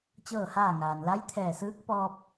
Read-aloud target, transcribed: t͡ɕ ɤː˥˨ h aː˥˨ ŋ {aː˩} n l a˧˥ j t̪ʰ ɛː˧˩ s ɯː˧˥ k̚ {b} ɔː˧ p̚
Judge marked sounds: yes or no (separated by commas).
yes, no